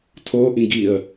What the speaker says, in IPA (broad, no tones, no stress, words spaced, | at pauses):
tʰoʔĩɡ iə̯